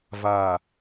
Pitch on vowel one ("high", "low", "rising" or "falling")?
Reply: low